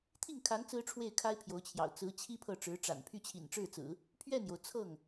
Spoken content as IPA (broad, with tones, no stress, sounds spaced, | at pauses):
t̪ʰ i˥˩ ŋ kʰ a˧˥ n t͡s ɹ̩˥ ʈ͡ʂʰ w e˥˩ ɪ̯ kʰ a˥ ɪ̯ pʰ j o˧˥ ʊ̯ t͡ɕʰ j ɑ̰˨˩ ʊ̯ t͡s ɹ̩˧˥ t͡ɕʰ i˥ pʰ ɤ˥˩ ʈ͡ʂ ɻ̩˧˥ ʈ͡ʂ a̰˨˩ n pʰ y˥˩ t͡ɕʰ ḭ˨˩ n ʈ͡ʂ ɻ̩˥˩ t͡s ɹ̩˨˩˦ | pʰ ɥ ɛ˥˩ n j o˩ ʊ̯ t͡sʰ ɤ˥˩ ŋ